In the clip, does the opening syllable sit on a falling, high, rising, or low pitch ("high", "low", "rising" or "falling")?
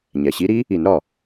low